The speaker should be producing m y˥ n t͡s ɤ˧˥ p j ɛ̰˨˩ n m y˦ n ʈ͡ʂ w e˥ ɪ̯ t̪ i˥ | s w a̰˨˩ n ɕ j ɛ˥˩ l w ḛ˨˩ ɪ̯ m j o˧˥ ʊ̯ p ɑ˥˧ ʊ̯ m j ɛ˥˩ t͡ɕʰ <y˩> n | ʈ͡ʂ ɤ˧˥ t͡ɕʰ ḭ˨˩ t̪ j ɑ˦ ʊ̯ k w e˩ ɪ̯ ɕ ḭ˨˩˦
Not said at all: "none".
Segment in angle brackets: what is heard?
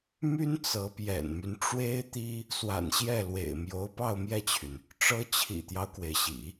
y˩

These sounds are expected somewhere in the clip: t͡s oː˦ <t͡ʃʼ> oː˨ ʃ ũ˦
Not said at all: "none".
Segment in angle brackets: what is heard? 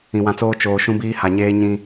t͡ʃ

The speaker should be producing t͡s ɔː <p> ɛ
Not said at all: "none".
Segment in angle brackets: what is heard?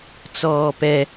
p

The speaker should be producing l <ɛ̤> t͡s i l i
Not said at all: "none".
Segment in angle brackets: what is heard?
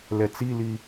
ɛ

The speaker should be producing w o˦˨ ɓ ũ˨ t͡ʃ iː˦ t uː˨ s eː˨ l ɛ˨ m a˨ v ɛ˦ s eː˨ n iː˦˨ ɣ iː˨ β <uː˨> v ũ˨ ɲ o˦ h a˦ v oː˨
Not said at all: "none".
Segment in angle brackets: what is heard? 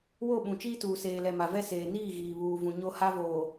uː˨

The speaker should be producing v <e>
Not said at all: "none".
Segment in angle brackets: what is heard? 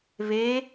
e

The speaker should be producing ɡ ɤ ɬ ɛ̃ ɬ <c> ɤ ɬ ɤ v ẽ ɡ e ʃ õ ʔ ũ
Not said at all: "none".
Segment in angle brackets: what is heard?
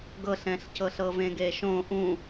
c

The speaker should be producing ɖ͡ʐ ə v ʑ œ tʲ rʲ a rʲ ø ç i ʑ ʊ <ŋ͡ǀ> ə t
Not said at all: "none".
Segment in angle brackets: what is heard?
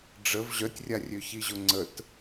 ŋ͡ǀ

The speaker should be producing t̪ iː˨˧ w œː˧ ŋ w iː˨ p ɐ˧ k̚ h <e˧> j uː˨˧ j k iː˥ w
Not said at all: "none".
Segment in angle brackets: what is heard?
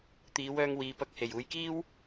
e˨˩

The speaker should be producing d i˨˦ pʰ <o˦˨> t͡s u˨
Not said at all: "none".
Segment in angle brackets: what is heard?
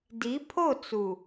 o˦˨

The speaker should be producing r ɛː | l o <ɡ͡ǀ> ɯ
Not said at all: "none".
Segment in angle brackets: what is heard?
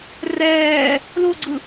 ɡ͡ǀ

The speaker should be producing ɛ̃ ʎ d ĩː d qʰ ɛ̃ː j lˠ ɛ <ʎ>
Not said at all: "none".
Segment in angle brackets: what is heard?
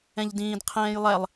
lˠ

